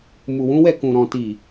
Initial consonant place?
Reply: labial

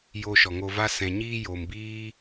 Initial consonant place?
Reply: palatal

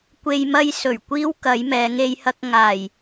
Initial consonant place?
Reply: velar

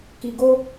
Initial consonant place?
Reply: velar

